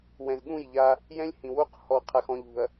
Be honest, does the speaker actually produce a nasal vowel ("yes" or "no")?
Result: yes